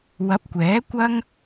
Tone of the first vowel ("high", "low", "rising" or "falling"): rising